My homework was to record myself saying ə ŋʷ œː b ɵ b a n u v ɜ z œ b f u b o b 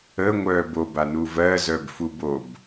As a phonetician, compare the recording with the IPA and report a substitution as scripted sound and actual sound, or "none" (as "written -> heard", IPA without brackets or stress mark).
ɵ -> o